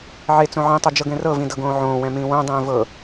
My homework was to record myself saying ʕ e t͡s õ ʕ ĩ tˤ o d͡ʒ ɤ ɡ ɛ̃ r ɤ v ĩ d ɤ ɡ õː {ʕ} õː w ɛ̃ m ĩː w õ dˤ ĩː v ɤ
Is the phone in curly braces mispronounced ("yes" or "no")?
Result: no